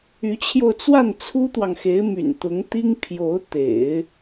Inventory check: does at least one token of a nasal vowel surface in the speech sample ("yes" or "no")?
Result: no